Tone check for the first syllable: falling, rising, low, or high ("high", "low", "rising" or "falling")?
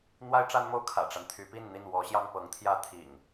high